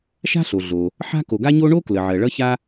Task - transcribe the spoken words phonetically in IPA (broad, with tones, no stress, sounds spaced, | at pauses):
ʃ a̤˥ ɬ o˩ ɮ o˩ | ħ a̤˥ k o˩ ɡ a˥ ɲ o˥ ɳ o˥ k l ə˩ ʕ ɜ˩ ɭ ʌ˥ ç a˥